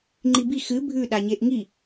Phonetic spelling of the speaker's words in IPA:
ŋ͡ǃ i b i x ɨ bʱ ʉ ɗ a ɲ e ʔ ŋ i

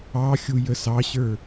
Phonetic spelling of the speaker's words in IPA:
ɑ xʲ u j ə s ɑ ɕ ə˞

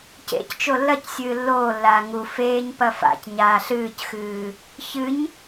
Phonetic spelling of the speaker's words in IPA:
c ḛ c t͡ʃ o lː ɐ c sʲ ɨː lː oː lː aː ŋ u f eː ɲ p ɐ f a̰ c ɲ aː ɬ ɨː c x ɨː | ç ɨ ɲ

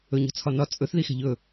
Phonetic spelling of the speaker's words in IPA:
ɵ ɲ ɔ̤ t͡sʰ ɒ n ɒ t͡sʼ ɵ θ ð i x ɛ̤ ʎ ɵ

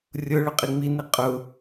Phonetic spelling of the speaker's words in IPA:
rʲ ʊ ɭ ʊ qʼ i ŋ͡m i n i qʼ ʊ

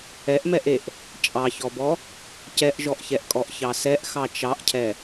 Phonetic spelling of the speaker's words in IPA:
ɛ ʔ m ɛ ʔ e ʔ | t͡ʃʼ ɑ ç ɔ b ɔ | c ɛ ʔ ʒ ɔ ʔ ç ɛ ʔ kʼ ɔ ʔ ç ɑ s ɛ ʔ x ɑ t͡ʃ ɑ ʔ cʰ ɛ

